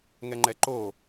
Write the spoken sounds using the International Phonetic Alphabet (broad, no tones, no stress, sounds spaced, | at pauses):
ŋ ɛ ŋ͡ǃ ɛ ǃ o